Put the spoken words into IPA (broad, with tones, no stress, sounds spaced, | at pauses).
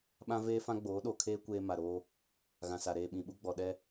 ɓ ã˦ v eː˦ f ã˦ ɡ͡b oː˨˦ ɗ o˨ kʰ eː˦ kʷ eː˦ m a˨ ɾ oː˦ | ɣ ã˨ s a˨ ɾ eː˨ ɓ ĩ˨ ɓ u˦ ɡ͡b ɔ˨ ɗ ɛ˦